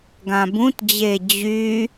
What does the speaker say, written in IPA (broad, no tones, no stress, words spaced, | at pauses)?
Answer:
ɡãbũtd͡ʑe d͡ʑy